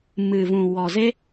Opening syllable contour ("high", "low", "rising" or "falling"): low